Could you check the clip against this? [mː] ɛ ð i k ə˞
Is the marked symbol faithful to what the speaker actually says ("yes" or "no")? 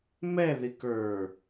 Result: no